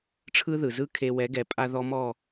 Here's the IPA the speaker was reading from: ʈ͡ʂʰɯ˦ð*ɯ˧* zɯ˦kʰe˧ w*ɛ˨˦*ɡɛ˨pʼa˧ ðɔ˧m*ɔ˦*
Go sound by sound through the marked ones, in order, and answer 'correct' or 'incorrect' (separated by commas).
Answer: incorrect, correct, incorrect